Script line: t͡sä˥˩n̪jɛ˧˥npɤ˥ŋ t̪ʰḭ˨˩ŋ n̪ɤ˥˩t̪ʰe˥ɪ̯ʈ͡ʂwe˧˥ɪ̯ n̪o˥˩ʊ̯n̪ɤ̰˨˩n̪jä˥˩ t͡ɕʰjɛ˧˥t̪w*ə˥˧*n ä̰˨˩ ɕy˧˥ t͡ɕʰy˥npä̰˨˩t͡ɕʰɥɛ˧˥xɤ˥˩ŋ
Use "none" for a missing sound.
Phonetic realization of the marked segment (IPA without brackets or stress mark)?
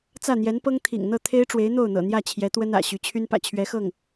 ə˥